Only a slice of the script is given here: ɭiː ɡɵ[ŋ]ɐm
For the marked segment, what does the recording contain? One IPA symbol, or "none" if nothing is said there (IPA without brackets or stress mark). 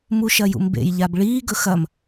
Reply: x